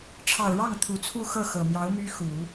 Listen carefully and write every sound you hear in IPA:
ʈ͡ʂʰ ɑ˨˩ ʊ̯ ɻ ɑ˥˩ ŋ t̪ʰ u˨˩ t͡sʰ u˥˧ x ɤ˥˩ x ɤ˨˩ m j ɑ˧˥ ʊ̯ m y˥ x u˨˩˦

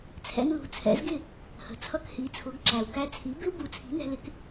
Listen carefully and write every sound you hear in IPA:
t͡sʰ ɛ̰˧ n l ṳ˩˥ t͡sʰ ɛ̰˩˥ z ɡ ɪ˥˩ | h ə̤˩ t͡sʰ ʌ˧ k h i˩˥ t͡sʰ ʊ˩˥ ɡ ǁ æ˩ w k æ˧ t͡sʰ i˩˥ b ɪ˥ w b u˩˥ t͡sʰ i̤˩˥ n ɛ̤˧ l ɪ˩˥ k

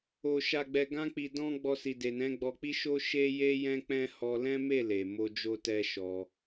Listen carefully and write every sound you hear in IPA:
o˨ ʃ a˨ ɡ͡b ɛ˨ ɡ ã˧ k͡p i˨ d ɔ̃˧ ɡ͡b ɔ˧ s i˨ d e˨ n ɛ̃˨˦ ɡ͡b ɔ˧ k͡p i˦ ʃ o˦ ʃ e˦ j e˦ j ɛ̃˦ k͡p ɛ̃˦ h ɔ˧ l ɛ̃˦ m e˦˨ l e˨ m o˧ d͡ʒ o˦ t ɛ˦ ʃ ɔ˧

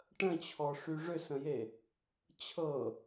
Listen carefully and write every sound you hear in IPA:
ʈ ə̃ t͡ɕʰ ɔ ʂ y ʐ ʏ s ə̃ j e | t͡ɕʰ ɤ

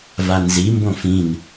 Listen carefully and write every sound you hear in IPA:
v a n z i m b õ f ĩ n

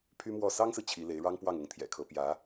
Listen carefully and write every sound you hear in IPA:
pʰ y˥ m w ɔ˥˩ s ɑ˥ ŋ s ɹ̩˨ t͡ɕʰ i˧˥ l e˧˥ ɪ̯ ɻ ɑ˥ ŋ p w ɑ˥˩ ŋ ʊ˧˥ ŋ t̪ʰ j ɛ̰˨˩ kʰ ɤ˧˥ p j ä˧˥

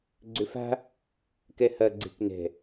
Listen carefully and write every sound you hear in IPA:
ɡ͡ǀ ʏ f a̤ | k ɛ h ɐ ɡ͡ǀ e̤ k n ɛ̤

